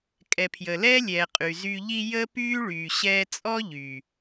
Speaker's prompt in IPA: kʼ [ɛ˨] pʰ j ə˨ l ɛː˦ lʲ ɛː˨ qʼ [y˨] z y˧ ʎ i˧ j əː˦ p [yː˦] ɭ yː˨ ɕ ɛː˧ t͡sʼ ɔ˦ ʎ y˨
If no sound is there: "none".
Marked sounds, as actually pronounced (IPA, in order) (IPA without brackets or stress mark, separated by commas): ɛ˨, y˨, yː˦